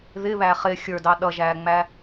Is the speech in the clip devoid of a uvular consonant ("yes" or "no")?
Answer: no